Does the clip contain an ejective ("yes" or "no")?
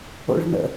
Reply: no